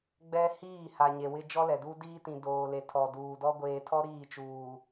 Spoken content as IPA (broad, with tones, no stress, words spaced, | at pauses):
ɡ͡bɛ˦ hiː˦˨ha˨ ɲe˨wɪ˦ d͡ʒɔ˦lɛ˨du˦ diː˦tĩ˨ doː˨le˨ tʰɔ˨duː˨dɔ˦ ɡʷeː˨tʰɔ˦ ɾiː˦˨t͡ʃuː˨